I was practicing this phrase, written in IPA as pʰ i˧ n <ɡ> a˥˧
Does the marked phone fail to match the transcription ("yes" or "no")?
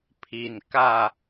yes